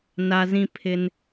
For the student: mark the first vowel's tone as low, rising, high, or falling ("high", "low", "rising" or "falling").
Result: high